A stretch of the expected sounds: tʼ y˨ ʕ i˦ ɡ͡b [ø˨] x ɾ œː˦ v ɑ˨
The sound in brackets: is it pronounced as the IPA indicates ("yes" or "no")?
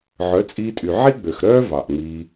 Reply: yes